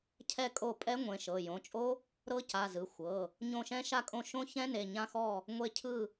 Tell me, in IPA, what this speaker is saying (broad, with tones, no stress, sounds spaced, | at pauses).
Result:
cʰ ɛ˦˨ kʼ o˦˨ pʼ ɛ˦˥ ŋʷ ẽ˩˧˩ ʃ ɤ˩˧˩ j õ˩˧˩ t͡ʃʼ o˦˥ | ɾ ɤ˦˥ c a˩˧˩ z ɯ˩˧˩ xʷ ɤ˩˧˩ | ɲ õ˦˨ ʃ ɛ̃˦˥ ʃ a˦˨ kʼ õ˦˨ ʃ õ˦˥ ç ɛ̃˦˥ n e˩˧˩ ɲ ã˦˨ x ɔ˦˨ | ŋʷ e˦˨ cʰ ɯ˦˨